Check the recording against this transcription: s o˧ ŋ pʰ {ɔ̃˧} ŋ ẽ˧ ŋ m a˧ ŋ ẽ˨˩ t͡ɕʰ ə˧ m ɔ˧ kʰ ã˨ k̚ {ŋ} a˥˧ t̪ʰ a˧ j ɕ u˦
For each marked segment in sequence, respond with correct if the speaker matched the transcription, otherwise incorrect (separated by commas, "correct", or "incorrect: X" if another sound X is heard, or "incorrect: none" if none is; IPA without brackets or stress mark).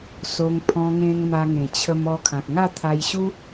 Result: correct, correct